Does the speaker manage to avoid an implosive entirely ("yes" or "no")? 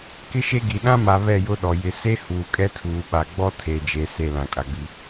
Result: no